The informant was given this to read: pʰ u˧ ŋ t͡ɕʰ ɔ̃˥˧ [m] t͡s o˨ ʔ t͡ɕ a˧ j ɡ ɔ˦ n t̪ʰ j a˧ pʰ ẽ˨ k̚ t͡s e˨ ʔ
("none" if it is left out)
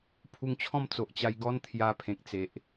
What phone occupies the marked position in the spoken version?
m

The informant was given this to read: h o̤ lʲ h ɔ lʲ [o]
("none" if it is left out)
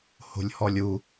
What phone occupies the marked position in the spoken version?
u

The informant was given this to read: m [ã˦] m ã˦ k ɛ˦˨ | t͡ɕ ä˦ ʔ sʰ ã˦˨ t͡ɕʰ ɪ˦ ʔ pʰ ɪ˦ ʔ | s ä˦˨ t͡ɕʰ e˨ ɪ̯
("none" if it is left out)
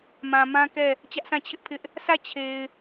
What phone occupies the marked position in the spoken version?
ã˨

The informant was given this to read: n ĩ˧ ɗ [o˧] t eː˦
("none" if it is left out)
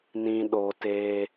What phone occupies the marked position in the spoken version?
o˧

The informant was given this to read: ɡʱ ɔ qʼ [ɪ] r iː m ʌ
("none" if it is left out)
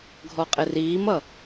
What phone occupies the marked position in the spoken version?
ɪ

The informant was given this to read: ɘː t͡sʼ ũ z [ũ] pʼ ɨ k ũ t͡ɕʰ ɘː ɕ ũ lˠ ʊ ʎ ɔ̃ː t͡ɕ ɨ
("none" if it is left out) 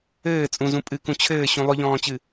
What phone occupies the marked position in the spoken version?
ũ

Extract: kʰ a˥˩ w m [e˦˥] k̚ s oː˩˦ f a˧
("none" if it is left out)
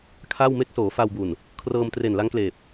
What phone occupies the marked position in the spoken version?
e˦˥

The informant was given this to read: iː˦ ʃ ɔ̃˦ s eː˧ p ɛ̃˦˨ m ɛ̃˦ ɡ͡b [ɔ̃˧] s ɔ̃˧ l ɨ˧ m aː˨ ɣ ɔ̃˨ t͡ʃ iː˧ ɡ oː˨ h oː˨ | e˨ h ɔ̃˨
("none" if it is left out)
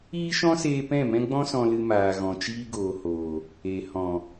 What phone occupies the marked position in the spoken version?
ɔ̃˦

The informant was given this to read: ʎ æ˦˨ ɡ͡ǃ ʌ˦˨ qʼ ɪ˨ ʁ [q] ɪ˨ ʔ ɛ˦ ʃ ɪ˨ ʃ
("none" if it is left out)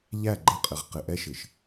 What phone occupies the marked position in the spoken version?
q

